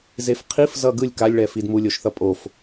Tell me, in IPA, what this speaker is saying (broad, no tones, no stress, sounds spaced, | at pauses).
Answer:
z e f qʰ i f z ʌ ɡ ɯ lʲ k a lʲ ɭ ɛ f i d m u lʲ o ʃ θ ʌ pʼ o f